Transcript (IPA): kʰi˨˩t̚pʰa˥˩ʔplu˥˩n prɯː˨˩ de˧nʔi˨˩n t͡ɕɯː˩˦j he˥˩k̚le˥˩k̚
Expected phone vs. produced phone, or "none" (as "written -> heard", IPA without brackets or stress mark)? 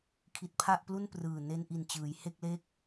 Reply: d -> n